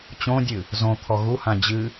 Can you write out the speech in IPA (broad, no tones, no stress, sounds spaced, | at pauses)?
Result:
t͡ɕ õ dʲ ɨ | z õ t̪ʰ ɔ ɣ u h ã d͡ʑ ɨ